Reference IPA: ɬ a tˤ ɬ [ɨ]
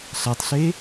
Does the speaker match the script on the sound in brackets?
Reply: no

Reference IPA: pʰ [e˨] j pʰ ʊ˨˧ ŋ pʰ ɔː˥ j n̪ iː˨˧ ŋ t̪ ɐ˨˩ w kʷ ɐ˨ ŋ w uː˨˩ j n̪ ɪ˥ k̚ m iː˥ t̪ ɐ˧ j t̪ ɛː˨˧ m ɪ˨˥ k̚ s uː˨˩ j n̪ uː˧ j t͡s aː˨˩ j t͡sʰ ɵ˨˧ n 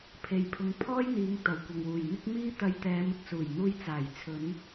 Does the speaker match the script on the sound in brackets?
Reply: yes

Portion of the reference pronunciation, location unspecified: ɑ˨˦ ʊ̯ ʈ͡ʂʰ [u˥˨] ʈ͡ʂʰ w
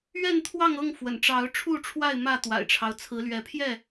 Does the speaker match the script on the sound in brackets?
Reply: yes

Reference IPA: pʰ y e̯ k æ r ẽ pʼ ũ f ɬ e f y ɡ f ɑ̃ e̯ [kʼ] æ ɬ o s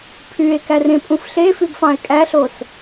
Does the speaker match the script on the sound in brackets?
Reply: yes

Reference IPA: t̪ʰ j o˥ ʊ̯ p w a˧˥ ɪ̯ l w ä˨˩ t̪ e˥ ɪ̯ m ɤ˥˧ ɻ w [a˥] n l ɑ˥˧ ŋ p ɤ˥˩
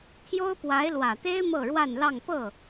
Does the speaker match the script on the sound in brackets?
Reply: no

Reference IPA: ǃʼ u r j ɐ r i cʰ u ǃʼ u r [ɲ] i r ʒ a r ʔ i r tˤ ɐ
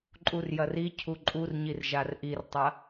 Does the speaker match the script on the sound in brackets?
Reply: yes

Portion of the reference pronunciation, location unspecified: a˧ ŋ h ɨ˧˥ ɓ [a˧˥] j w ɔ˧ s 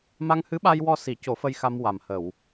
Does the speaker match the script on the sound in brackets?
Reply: no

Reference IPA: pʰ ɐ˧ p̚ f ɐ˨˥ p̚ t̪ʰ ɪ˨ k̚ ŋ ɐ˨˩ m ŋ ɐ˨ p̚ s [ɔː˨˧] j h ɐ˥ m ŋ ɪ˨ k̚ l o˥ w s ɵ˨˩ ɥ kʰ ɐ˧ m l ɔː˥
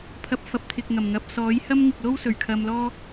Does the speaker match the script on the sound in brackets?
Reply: no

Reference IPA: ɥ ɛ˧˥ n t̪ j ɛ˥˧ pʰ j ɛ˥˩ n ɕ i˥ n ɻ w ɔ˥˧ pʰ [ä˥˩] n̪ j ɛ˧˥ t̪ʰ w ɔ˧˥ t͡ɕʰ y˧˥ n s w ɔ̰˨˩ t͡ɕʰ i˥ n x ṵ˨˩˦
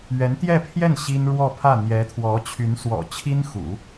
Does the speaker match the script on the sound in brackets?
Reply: yes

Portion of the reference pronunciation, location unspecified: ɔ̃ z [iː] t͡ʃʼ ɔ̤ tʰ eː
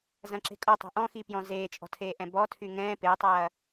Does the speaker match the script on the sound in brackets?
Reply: no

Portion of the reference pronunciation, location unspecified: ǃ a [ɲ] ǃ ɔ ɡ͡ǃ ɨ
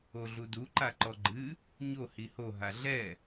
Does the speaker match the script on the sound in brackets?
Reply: no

